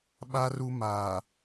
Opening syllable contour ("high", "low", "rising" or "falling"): high